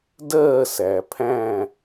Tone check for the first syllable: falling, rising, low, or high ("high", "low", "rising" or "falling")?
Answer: falling